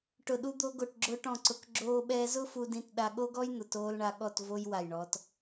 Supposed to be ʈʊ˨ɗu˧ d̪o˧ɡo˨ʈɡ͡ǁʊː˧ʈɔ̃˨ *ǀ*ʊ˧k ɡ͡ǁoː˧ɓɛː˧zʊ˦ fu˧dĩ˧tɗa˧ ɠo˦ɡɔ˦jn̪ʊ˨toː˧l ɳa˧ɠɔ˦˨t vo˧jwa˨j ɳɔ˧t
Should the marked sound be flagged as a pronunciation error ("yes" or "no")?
no